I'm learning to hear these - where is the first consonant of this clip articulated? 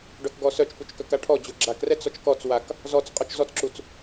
retroflex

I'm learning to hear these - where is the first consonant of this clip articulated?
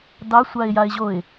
tongue tip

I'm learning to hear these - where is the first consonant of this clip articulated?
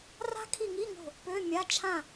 tongue tip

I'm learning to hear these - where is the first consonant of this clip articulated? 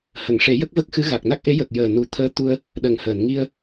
throat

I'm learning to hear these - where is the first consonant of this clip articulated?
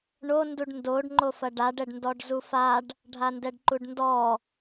retroflex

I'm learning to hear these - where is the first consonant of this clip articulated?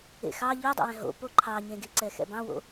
velum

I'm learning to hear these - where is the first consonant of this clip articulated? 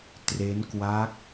tongue tip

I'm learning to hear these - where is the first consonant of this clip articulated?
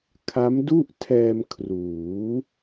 velum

